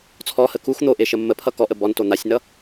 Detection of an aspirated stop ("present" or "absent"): present